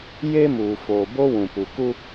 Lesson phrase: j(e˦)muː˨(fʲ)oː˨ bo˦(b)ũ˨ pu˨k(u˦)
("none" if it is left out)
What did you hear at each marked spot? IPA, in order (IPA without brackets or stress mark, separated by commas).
e˦, f, w, u˦